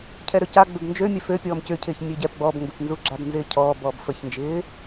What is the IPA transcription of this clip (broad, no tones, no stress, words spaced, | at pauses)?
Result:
cʰɛɾøca ɡ͡bʏbnd͡ʒø mʲɛfø pʲɔːmcʏ cʰɪːçmʲøɟɛp ɡ͡bɔbŋɡʏpnzuɡ͡ǁab nzɪːcʰɔː bɔːbfəçnd͡ʒɪː